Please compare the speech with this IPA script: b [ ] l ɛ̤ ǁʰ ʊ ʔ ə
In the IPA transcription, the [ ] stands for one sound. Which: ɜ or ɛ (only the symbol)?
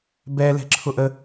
ɛ